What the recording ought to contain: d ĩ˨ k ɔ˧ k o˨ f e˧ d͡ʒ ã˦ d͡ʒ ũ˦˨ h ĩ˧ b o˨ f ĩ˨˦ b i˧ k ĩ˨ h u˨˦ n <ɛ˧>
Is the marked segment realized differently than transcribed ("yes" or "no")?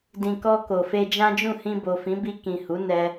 no